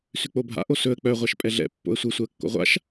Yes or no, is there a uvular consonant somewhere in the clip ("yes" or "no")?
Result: yes